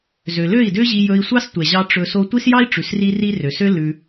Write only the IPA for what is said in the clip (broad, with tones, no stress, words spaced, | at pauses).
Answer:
zø˨lø˦˨i̯dø˦ʑi˧ jɵ˧i̯sʷɑ˦stʷɛ˨ʑɑ˧ ʈ͡ʂɵ˧ so˧tʷi˦sjɑ˦i̯ʈ͡ʂʉ˨s ri˦ri˦ rø˨sø˦ lʉ˧